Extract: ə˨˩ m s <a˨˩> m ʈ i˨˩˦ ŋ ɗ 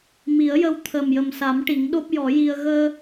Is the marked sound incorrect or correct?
incorrect